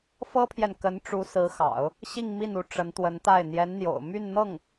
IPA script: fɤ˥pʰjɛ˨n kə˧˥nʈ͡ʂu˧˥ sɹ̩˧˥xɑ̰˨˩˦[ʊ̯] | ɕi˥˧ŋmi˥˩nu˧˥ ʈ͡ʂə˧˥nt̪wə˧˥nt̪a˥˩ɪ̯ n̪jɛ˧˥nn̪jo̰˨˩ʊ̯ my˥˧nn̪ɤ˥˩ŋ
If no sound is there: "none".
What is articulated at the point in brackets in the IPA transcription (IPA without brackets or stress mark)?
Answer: ʊ̯